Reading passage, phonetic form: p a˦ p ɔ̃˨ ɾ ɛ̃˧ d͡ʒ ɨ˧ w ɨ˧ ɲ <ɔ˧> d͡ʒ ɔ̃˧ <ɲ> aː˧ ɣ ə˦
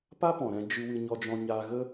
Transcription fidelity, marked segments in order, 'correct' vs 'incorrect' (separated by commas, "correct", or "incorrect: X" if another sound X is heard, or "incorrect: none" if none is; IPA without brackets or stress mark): correct, correct